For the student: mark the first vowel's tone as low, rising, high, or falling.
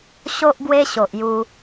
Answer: high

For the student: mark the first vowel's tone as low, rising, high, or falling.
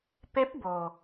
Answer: rising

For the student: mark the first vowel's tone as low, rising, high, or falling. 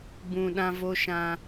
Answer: low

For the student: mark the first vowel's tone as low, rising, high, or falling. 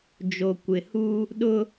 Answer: low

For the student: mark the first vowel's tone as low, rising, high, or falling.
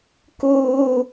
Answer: high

